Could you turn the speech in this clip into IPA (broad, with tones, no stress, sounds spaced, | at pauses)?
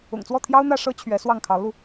ʊ̰˨˩ ŋ t͡s w ɔ˥˩ t̪ʰ j ɑ˥ ʊ̯ n̪ ä˥˩ ʂ ɤ˥ t͡ɕʰ ɥ ɛ˧˥ s w ɑ˥˩ ŋ kʰ ɑ˧˥ ʊ̯ l u˧